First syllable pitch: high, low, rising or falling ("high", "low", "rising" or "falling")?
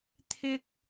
high